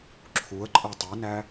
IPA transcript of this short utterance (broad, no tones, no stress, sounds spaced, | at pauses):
ǁʰ u ə̯ ǃʼ ɛ tˤ i n æ